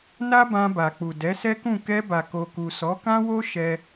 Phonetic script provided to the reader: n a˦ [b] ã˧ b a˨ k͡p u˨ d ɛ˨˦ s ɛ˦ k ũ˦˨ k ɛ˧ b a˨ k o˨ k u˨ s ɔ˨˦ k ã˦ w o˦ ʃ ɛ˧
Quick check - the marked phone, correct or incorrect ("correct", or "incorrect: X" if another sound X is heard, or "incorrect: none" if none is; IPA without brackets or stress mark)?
correct